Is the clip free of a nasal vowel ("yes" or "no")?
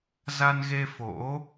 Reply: yes